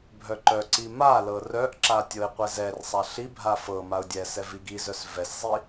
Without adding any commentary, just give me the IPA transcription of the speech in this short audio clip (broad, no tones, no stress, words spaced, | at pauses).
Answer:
bʱœǃœǀi malɤ rœʔǁa tʲɤɪ̯qʷɛzɛrsˤa ɬibʱa fɤ maʊ̯dʲɛsɛ viɡizœs vɛszˤi